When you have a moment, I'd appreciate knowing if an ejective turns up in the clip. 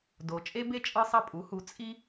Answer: yes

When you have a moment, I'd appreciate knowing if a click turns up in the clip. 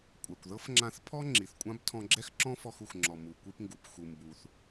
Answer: yes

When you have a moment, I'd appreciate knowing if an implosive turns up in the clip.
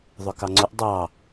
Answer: no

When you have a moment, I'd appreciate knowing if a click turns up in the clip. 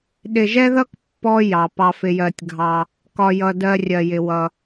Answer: no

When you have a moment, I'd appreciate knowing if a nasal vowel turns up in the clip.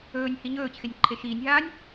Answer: no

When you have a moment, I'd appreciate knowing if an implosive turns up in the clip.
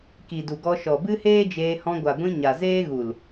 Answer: no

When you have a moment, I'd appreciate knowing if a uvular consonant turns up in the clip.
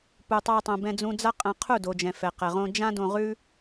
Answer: yes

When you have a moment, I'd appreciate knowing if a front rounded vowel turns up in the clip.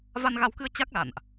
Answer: no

